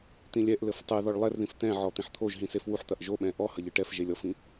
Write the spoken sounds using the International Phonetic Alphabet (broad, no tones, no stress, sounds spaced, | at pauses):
t̪ ĩ lʲ ɛ ʔ l ɘ f tˤ ɨ ð ɔ ɭ lˠ ɛ r ð ĩ f t̪ ɛ̃ ʕ ɔ t̪ ĩ ħ t̪ʰ o ʒ ɦ ĩ s e f w u ħ t̪ ɐ ʔ ʒ o ɓ ɛ̃ ʔ ɔ h ɐ ʎ ɨ ʈ ɛ f ʒ e lʲ ɔ f ĩ